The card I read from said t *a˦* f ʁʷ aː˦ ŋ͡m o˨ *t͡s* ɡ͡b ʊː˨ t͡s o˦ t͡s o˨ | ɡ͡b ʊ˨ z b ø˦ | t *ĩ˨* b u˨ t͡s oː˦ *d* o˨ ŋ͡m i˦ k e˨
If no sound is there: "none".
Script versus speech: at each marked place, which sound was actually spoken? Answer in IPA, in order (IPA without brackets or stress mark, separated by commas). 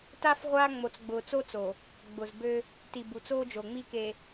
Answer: a˦, t͡s, i˨, d͡ʒ